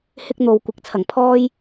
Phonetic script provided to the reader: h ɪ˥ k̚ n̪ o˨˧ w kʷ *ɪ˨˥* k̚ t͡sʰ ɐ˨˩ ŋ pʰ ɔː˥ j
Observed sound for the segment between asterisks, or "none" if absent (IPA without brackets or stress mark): ɪ˨˥